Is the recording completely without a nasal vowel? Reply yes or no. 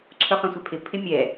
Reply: no